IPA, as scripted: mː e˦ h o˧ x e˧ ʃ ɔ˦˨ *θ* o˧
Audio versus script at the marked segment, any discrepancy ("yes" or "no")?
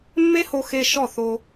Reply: no